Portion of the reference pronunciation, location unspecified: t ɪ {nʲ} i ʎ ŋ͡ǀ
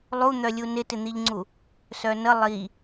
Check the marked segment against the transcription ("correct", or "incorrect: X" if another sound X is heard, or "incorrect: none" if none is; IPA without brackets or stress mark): incorrect: n̪